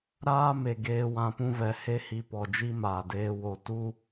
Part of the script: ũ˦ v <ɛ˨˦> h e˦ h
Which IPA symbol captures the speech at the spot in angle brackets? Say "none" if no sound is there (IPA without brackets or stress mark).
ɛ˨˦